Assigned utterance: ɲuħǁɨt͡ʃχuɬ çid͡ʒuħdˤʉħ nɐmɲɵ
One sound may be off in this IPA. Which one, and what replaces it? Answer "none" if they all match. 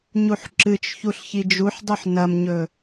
χ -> ç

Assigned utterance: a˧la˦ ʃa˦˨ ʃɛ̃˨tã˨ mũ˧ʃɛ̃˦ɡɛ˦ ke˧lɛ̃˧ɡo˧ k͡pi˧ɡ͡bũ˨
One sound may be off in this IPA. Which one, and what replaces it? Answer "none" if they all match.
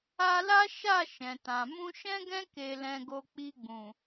ɛ˦ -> ɛ̃˦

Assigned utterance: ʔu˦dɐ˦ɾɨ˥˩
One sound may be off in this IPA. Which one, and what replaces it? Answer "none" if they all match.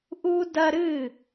none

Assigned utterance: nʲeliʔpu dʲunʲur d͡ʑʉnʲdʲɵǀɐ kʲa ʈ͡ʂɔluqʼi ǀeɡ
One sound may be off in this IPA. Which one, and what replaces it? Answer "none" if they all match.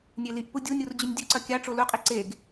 ɔ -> o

